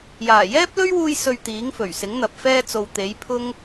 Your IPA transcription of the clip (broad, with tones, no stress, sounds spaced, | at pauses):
j aː˨˩ j ɛː˥ p̚ l ɵ˥ ɥ w uː˧ j s ɵ˧ ɥ t̪ iː˨˥ ŋ f ɵ˨˩ ɥ s ɪ˨˥ ŋ n̪ ɐ˨ p̚ f ɛː˧ t͡s o˨ w t̪ e˨˥ j pʰ ʊ˥ ŋ